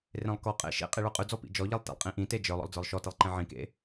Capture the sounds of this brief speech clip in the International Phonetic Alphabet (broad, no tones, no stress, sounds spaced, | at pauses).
r ẽ lˠ k ɔ qʼ ḛ ʃ ḛ qʼ i ɭ ə˞ qʼ ʉ d͡z ɔ p ḭ d͡ʒ ɔ ʎ i lˠ t ḭ lˠ qʼ ĩ ʔ ĩ t e d͡ʒ ə˞ lˠ ɔ̰ lˠ d͡z ə˞ lˠ ʃ ɔ t i lˠ ǃ ẽ ʕ ĩ k ḛ